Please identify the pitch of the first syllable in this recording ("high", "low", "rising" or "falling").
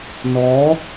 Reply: rising